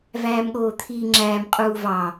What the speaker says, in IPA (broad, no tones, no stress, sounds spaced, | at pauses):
v æː m ɠ oː t̪ʰ iː ŋ͡ǁ æː m qʼ uː v ɑ